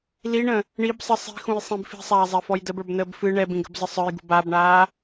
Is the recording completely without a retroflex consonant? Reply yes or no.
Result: no